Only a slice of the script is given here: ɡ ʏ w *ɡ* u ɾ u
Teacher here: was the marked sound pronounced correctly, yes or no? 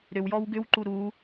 no